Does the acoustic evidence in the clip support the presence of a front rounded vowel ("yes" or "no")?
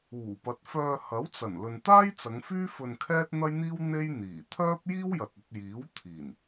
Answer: yes